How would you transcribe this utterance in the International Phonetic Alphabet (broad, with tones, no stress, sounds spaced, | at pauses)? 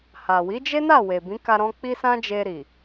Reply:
h a˨ w i˨˦ d͡ʒ e˦ n a˦˨ w e˨ b ĩ˨˦ k a˧ ɾ ɔ̃˧ k͡p i˦ s ã˦ d͡ʒ e˧ ɾ i˨